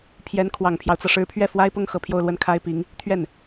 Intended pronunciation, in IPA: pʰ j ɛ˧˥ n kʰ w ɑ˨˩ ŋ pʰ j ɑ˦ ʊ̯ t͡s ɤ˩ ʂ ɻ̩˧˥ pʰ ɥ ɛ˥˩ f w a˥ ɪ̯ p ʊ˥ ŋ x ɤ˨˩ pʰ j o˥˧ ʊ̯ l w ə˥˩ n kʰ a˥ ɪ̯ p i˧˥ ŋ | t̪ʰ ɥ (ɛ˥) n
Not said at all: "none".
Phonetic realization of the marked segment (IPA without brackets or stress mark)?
ɛ˥˩